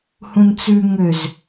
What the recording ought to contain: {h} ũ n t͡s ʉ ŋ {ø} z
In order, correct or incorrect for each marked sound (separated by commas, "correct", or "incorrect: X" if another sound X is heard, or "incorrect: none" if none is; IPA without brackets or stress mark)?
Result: correct, correct